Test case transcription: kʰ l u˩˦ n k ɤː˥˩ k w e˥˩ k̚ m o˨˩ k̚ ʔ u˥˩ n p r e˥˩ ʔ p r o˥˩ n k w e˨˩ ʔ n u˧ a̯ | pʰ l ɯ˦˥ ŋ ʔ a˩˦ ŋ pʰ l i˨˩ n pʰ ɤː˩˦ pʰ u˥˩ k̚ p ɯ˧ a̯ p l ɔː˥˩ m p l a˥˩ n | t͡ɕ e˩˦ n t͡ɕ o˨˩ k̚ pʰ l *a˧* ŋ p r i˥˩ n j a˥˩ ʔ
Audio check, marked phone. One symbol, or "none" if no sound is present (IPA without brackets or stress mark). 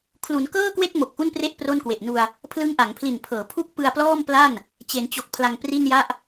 a˧